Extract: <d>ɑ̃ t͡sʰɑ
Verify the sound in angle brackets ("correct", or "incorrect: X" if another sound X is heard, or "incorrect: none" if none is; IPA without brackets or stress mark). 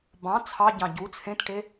incorrect: b